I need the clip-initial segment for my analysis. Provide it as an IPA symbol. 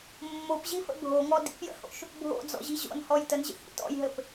mː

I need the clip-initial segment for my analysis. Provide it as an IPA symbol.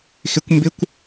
x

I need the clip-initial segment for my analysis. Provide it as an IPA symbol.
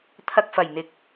t̪ʰ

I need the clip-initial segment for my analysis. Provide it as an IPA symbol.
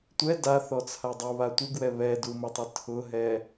tʷ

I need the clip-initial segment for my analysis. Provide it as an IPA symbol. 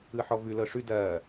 ɯ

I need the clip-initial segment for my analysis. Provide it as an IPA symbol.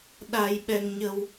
ɗ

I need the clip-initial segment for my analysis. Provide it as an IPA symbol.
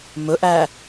m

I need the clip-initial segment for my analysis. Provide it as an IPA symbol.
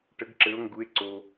ʈ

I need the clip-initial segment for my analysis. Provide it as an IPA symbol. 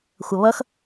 xʷ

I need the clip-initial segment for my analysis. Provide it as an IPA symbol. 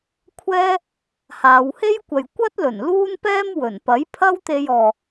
kʷʰ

